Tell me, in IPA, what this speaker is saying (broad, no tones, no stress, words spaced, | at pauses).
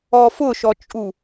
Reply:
ɔfʊʃɔt͡ʃʼu